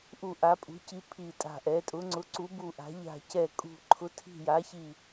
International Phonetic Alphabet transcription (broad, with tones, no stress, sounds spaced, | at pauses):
ʔ u˨˩ ʔ a˩˧ pʼ ṳ˩˧ c i˩˧ pʰ i˨˩ tʼ a̤˨˩ ʔ ɛ˩˧ tʼ ʊ˩˧ ŋ͡ǀ ʊ˩˧ ǀ u˩˧ b u˨˩ ʔ a̤˩˧ ʎ a̤˨˩ c ɛ˨˩ kʼ ṳ˨˩ ǃʰ ʊ˩˧ tʰ i̤˨˩ j a˩˧ ç i˨˩